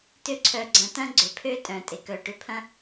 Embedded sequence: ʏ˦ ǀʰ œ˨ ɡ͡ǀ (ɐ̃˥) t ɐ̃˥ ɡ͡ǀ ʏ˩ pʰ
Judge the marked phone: incorrect: ɐ̃˨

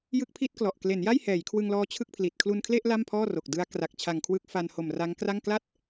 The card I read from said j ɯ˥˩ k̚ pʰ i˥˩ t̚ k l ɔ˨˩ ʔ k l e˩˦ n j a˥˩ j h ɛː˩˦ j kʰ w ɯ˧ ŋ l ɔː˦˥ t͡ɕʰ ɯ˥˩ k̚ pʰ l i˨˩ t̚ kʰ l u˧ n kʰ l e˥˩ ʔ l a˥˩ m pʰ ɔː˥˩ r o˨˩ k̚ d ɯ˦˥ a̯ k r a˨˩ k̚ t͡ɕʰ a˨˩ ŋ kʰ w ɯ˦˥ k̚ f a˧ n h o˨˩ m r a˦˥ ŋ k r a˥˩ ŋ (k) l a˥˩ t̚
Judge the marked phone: correct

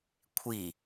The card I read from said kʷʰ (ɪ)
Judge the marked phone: incorrect: i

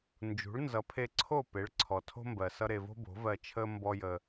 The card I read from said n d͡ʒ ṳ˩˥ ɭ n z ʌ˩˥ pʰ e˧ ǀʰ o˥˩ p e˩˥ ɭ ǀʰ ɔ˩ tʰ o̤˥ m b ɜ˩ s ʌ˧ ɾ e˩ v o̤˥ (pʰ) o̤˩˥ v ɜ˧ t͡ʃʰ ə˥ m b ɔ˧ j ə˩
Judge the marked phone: incorrect: b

